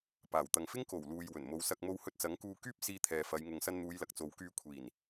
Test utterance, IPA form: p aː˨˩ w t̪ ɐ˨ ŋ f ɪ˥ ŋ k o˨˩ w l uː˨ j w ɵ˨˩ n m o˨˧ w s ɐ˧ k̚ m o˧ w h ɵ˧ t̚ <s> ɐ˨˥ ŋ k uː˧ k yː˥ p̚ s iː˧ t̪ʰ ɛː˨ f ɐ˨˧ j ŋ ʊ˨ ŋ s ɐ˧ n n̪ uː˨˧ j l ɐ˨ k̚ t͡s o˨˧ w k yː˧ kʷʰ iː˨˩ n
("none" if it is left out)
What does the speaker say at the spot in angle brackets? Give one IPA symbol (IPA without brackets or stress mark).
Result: t͡s